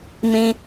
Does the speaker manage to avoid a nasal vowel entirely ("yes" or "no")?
no